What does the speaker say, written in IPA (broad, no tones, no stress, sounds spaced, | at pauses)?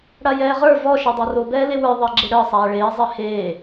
ɽ a j ɛː ʁ ə˞ v ɔ ʃ ɛ dˤ a r o b ɛː l e w ə˞ ðˤ əː ɡ͡ǁ e ɽ əː sˤ aː ɭ eː zˤ e h eː